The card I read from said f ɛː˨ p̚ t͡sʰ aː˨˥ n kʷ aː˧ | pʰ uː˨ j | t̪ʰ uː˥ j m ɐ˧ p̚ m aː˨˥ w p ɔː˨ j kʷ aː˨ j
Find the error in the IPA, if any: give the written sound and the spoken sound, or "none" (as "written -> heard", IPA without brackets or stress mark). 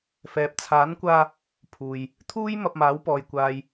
none